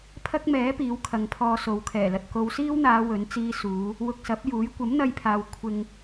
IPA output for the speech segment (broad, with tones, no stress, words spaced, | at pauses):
pʰɐ˥k̚mɛː˨˥ piː˨˥wkʰɐ˨˧ŋpʰɔː˧ so˨˧wkʰɛː˨˩lɐ˧t̚ ko˨˧wsiː˥wn̪aː˨˧ wɵ˨˥nt͡siː˥suː˨˥ | wʊ˧k̚sɐ˨˥p̚juː˨˥j kʷɐ˨˥mn̪ɐ˧jpʰaː˨w kʷʰɪ˧ŋ